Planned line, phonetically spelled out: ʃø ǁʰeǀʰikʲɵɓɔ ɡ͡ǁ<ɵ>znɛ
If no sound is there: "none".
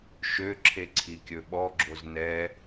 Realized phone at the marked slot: o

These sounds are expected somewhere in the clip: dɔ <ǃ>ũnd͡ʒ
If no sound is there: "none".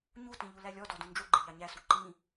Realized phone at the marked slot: d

